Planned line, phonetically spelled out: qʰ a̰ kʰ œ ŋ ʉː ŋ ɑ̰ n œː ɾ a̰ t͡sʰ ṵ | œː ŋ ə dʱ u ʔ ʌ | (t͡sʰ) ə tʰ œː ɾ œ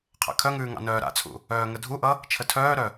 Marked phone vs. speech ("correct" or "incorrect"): incorrect